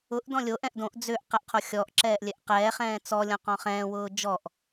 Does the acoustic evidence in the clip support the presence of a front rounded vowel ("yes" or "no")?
yes